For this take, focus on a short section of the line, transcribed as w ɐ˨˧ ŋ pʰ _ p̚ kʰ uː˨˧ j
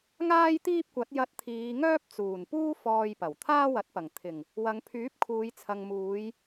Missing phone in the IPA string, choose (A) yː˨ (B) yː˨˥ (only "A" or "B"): B